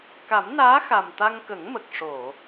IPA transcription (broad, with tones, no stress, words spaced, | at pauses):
ka˨˩˦mnaː˧˥xa˨˩m t̪a˧ŋkə˨˩˦ŋmə˨˩k̚ ʂo˨˩˨